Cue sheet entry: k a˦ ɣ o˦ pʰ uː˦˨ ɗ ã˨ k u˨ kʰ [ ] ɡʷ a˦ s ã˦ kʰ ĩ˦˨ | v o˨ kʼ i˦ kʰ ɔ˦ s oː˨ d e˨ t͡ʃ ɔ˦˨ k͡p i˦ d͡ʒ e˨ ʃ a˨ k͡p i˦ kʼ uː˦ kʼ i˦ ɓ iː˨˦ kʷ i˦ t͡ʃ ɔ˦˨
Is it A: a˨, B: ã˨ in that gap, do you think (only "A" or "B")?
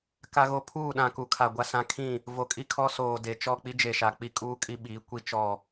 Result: A